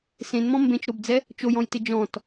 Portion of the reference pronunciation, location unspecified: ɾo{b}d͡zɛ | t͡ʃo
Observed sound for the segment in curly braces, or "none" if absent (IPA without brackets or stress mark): b